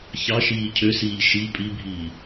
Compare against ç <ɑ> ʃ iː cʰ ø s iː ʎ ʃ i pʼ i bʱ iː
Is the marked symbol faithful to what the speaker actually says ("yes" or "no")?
yes